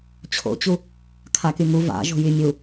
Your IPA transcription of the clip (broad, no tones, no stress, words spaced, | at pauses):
t͡ɕʰo̰t͡ɕu | kʰakyŋu va̰ ʒo̤jymʲu